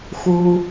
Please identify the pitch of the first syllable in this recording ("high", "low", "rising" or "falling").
low